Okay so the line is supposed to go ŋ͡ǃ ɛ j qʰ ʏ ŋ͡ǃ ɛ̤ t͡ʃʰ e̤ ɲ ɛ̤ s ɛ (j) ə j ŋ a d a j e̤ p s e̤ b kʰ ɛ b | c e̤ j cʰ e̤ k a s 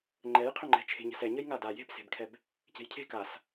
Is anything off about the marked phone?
yes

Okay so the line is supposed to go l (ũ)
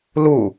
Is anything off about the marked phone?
yes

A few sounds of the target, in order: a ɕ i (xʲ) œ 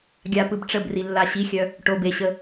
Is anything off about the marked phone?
no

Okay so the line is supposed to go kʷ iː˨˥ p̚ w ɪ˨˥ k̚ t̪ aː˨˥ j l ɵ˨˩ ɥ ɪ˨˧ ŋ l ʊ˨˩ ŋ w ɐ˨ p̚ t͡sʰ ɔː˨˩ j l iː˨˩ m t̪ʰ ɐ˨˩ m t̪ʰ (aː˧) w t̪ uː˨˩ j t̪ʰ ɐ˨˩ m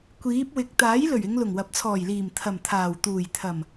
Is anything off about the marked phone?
yes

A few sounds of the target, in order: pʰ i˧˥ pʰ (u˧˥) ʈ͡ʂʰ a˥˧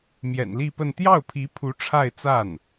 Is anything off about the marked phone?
no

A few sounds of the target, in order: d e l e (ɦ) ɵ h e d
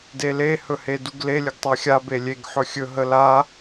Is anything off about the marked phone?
yes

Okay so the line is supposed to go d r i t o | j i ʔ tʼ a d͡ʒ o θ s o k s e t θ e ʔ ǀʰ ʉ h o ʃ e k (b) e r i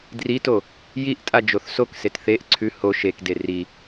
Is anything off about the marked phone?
yes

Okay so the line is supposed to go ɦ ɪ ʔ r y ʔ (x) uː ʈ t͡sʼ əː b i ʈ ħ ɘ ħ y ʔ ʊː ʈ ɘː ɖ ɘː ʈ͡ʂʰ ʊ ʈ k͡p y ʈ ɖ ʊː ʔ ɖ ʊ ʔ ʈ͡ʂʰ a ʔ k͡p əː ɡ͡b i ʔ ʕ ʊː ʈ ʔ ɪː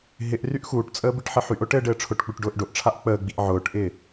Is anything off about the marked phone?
no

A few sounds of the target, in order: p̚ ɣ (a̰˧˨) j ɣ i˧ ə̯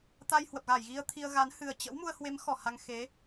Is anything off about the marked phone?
yes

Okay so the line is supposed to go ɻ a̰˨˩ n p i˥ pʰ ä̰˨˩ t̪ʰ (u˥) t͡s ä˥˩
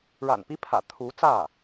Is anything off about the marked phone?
yes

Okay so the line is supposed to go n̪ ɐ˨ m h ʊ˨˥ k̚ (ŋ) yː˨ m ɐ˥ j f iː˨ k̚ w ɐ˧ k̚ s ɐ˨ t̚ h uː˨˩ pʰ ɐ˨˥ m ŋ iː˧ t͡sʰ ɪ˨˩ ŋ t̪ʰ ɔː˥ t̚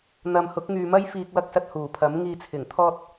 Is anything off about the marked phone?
no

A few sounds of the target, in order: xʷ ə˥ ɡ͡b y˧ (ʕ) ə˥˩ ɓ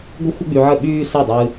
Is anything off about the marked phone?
no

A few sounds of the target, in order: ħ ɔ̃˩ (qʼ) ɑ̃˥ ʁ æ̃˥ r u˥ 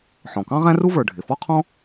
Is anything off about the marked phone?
yes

